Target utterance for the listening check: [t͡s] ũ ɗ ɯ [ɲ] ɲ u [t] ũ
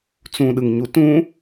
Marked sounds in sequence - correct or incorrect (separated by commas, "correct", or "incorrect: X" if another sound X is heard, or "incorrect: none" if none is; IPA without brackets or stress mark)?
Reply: correct, incorrect: ŋ, correct